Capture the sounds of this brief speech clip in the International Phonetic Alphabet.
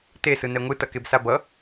t e s ɯ n ɛ ŋʷ ɯ t ʌ k e b s a b ʌ

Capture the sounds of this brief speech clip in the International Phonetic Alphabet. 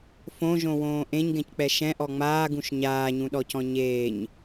f õ ʒ õ w õː ʔ ẽ ɲ ɡ ɛ̃ c k͡p ɛ ʃ ɛ̃ ʔ ɔ ŋ͡m aː ɡ ũ ʃ ɲ aː ɲ ũ ɗ ɔ c ɔ̃ ɲ eː ɲ

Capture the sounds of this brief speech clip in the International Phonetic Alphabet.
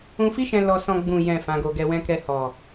ũ˧ f i˦ ʃ ɛ̃˧ l ɔ˧ s ɔ̃˧ ɡ͡b ũ˨ j ɛ̃˨ f ã˨˦ ɡ o˧ ɡ ɛ˧ w ɛ̃˦ k ɛ˧ h ɔ˨

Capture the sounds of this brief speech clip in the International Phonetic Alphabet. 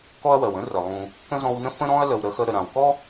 k ɔ˦ ɐ̯ w ɜ˩ w ə̃˥ r ə˩ lˠ ũ˨ | k ə̃˥ z ɔ̃˦ w n ə̃˥ f ə̃˥ ɾ ɔ̃˥ ɐ̯ l ə˨ w ɾ ə˥ x ə˥ ɾ ə˨ ɾ ã˨ w k ɔ˥

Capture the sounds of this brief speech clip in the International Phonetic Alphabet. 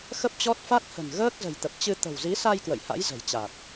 x ə˦˥ p̚ t͡ɕ ɔ˦˥ t̚ f a˦˥ t̚ h ə̤˨˩ n ɣ əː˦˥ k̚ z ə̤˨˩ j t̪ ə˨˩ p̚ t͡ɕ ɨ˧ t̪ ə̤˨˩ w z i˨˦ s a˧ j k w ə̰˧˨ j h a̰˧˥ j z ə̤˨˩ j t͡ɕ a˨˩ t̚

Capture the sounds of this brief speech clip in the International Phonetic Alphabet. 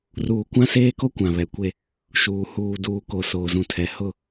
r uː˨ kʷ ã˦ s eː˦ k o˦ kʷ ã˨ β ɛ˨˦ kʷ e˦ | ʃ uː˨ h uː˨ d uː˨ k o˨ s oː˨ z ũ˨ tʰ ɛ˨ h ʊ˦˨

